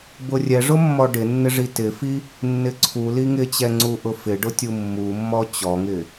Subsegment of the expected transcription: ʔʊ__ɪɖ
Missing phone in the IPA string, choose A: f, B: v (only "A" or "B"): A